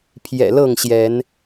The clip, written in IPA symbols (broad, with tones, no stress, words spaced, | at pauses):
pʰjɛ̰˨˩lɤ˥˨ŋɕjɛ˨˦n